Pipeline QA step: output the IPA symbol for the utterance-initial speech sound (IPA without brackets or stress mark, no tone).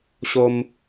ɕ